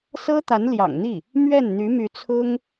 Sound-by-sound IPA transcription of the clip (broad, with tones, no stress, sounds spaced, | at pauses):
s ɤ˥ t̪ a˧˥ n l j ɑ̰˨˩ ŋ n̪ i˥˩ | m ɥ ɛ˥˩ n n̪ y˧˥ m y˧˥ t͡sʰ ʊ˥ ŋ